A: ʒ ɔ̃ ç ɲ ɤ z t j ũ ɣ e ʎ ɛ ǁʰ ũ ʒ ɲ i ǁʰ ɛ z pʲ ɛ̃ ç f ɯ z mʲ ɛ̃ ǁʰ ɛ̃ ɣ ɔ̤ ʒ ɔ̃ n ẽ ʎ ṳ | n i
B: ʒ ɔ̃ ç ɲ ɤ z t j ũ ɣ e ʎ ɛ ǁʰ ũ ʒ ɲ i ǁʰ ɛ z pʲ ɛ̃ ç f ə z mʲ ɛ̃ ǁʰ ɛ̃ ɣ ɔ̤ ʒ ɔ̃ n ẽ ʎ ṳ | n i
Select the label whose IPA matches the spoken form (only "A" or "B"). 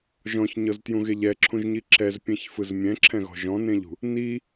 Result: A